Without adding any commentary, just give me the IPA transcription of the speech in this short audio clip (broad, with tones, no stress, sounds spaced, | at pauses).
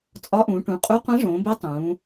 t͡sʼ ɒ˧˥ ʔ ũː˩˧ ʈ ũ˩˧ qʼ u˧˥ qʷ ẽ˧˥ ʐ õː˩˧ b e˧˥ tˤ ũː˩˧